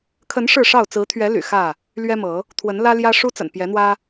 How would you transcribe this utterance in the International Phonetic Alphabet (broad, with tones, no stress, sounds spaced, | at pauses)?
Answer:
kʰ ə˨˦ n ʂ ɻ̩˥˨ ʂ ɑ˥˨ ʊ̯ t͡s ɹ̩˨˦ t̪ʰ ɥ ɛ˨˦ l y̰˨˩ x ä˥˨ | l ɥ ɛ˦ m ɤ˨˦ | t̪ʰ w ə˨˦ n l ä˦ l j ä˦ ʂ u˦ t͡s ə̰˨˩ n p j ɛ˨˦ n̪ w ä˦